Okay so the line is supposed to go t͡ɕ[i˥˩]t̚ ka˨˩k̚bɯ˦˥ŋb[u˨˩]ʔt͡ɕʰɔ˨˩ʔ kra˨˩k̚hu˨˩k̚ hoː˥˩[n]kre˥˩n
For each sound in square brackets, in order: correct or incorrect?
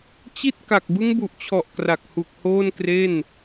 correct, correct, correct

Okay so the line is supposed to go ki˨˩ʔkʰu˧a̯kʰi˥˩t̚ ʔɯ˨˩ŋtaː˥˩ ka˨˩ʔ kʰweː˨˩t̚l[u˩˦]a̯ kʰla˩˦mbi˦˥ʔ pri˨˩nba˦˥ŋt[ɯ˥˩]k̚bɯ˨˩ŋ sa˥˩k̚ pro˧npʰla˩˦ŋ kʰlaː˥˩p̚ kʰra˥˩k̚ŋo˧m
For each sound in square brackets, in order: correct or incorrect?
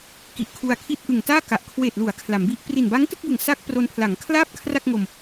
correct, correct

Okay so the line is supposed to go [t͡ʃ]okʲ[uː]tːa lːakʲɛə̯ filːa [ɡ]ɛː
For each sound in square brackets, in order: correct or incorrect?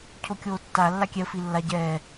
incorrect: cʰ, incorrect: oː, incorrect: ɟ

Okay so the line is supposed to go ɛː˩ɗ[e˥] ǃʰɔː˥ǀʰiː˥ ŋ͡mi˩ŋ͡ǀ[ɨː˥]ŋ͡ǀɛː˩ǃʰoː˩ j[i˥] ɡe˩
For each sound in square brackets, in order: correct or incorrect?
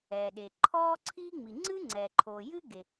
incorrect: e˩, correct, incorrect: ɨ˥

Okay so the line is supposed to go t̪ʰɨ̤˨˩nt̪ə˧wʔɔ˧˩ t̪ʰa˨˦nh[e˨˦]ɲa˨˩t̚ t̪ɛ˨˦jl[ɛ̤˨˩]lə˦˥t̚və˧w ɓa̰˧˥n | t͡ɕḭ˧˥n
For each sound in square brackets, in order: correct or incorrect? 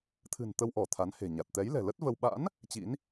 incorrect: e̤˨˩, correct

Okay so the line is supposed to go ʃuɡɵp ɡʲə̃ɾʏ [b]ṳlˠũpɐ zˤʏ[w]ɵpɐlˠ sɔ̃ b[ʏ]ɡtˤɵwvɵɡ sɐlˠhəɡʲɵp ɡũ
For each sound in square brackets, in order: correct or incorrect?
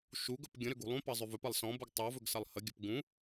incorrect: ɡ, incorrect: v, incorrect: u

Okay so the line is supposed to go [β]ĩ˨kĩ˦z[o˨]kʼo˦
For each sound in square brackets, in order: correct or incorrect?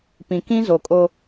incorrect: p, correct

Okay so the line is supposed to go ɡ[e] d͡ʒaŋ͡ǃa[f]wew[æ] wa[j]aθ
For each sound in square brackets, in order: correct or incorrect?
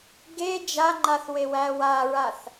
correct, incorrect: θ, correct, incorrect: ɹ

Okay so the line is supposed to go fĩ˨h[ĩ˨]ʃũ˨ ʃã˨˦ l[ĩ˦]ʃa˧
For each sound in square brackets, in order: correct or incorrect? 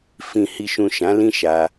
incorrect: i˨, correct

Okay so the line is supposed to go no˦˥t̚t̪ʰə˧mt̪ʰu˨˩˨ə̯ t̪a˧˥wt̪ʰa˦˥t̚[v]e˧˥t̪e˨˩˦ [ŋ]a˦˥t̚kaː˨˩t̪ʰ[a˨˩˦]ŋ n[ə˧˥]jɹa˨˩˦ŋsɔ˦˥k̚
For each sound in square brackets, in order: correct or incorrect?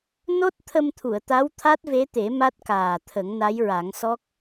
correct, incorrect: m, incorrect: ə˨˩˦, incorrect: a˧˥

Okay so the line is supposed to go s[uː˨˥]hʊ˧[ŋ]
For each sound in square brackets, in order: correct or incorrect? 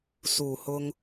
incorrect: uː˨˩, correct

